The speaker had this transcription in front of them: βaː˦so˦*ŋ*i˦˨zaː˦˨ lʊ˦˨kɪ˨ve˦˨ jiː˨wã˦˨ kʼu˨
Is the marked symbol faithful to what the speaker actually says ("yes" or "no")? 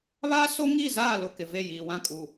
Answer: yes